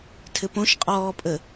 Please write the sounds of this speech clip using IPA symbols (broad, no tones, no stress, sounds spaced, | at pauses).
tʰ ɘ p õ ʃ qʼ ɔː pʼ ə